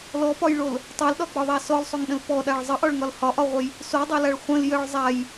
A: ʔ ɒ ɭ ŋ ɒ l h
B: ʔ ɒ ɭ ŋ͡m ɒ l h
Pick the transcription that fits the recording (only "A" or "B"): A